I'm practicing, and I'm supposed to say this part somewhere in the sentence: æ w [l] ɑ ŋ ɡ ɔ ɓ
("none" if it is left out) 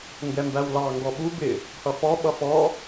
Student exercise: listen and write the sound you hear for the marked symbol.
l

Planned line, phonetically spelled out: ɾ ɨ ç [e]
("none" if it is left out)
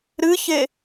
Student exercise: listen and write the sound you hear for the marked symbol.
e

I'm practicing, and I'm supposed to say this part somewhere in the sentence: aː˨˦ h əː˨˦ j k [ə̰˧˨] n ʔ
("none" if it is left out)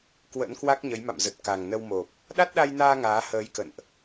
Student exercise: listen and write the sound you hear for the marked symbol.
ə̰˧˨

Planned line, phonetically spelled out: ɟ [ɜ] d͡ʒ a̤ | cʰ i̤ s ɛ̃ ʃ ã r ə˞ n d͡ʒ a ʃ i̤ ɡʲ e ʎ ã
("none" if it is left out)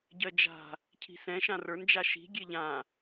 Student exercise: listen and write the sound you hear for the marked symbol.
ɜ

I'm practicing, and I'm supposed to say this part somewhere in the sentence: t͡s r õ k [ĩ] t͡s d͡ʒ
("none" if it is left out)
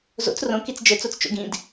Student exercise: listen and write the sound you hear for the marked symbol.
i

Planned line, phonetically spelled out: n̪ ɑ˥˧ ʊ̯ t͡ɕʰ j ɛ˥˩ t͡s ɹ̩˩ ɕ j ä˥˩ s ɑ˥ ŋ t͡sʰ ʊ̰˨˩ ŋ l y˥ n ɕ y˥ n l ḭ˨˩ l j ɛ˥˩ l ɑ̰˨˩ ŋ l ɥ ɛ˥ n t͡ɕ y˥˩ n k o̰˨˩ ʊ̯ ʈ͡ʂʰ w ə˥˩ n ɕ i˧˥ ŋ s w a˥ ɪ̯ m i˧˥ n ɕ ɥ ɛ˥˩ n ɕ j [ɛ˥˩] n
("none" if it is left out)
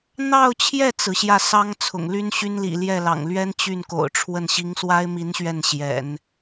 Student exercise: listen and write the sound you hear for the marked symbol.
ɛ̰˨˩˦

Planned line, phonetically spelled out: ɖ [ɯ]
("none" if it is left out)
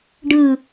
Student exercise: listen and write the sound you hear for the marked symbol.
ɯ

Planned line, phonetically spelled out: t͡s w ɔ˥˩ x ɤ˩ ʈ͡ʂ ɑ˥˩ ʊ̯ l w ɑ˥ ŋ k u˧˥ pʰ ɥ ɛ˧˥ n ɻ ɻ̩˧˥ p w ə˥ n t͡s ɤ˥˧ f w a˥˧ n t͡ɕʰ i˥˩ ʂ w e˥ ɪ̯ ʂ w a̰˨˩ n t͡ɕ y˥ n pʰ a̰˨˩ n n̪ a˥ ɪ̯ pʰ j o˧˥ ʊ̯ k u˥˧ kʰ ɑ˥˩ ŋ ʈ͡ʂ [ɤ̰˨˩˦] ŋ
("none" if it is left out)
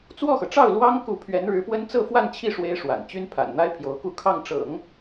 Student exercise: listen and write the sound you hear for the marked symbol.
ɤ̰˨˩˦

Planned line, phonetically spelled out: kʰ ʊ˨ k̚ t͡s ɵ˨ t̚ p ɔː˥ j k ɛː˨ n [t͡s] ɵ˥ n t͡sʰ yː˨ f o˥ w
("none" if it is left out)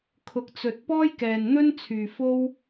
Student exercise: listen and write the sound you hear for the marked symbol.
n̪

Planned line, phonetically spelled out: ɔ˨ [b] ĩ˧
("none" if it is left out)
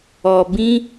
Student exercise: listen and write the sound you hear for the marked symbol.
b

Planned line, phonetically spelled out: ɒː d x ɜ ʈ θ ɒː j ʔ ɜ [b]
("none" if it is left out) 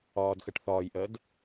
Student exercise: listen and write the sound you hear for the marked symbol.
d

